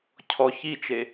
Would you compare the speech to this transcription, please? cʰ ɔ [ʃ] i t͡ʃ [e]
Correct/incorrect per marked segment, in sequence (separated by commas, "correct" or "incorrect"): incorrect, correct